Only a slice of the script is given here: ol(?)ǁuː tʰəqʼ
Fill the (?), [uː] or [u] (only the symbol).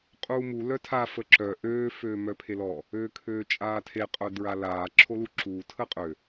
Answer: u